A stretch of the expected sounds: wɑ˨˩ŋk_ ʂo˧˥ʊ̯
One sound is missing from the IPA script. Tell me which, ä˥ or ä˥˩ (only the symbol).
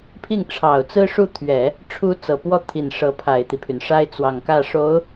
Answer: ä˥˩